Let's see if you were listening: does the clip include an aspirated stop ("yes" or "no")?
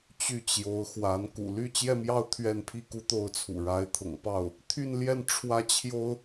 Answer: yes